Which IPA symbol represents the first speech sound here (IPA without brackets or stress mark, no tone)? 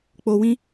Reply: k͡p